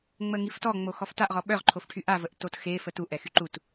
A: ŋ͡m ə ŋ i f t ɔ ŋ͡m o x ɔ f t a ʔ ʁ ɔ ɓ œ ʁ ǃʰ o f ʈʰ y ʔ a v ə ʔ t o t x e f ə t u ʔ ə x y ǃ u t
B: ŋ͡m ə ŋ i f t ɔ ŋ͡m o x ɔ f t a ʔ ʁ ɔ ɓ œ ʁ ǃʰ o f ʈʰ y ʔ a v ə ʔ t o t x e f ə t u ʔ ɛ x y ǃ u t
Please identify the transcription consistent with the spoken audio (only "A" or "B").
B